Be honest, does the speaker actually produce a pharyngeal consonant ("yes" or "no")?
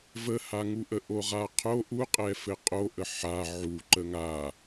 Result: yes